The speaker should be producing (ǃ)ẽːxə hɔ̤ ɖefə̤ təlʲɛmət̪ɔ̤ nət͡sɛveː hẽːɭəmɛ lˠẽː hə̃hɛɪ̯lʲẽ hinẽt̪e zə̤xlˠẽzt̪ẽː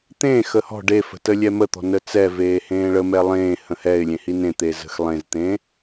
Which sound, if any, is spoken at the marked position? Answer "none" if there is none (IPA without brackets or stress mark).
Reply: t̪